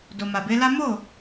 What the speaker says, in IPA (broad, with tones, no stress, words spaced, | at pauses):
do˨ma˨be˨˦la˦ mo˦˨